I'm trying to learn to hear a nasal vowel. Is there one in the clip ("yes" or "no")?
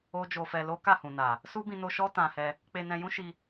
yes